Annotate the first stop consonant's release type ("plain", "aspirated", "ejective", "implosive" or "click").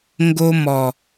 plain